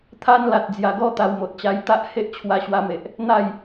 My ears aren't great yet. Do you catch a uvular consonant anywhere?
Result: no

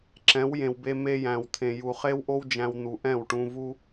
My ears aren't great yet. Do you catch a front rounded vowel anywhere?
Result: no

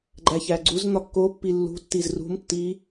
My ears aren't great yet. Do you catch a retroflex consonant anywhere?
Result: no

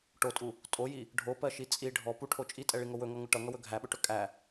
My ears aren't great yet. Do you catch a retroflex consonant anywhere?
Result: yes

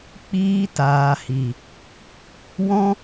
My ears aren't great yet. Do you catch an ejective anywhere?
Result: no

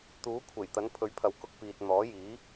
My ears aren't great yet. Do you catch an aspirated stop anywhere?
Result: yes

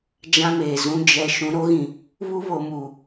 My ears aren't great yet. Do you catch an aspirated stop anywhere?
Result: no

